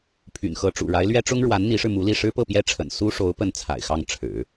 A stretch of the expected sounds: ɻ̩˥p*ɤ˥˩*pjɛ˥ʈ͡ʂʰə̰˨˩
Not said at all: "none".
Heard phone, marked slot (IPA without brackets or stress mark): ɤ˥˩